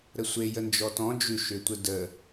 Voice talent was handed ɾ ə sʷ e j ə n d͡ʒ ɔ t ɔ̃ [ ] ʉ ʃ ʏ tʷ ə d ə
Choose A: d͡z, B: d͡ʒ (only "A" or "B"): B